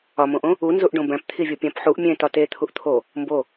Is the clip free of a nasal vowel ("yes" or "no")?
no